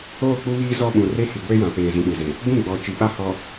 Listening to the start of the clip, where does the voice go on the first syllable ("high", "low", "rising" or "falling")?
falling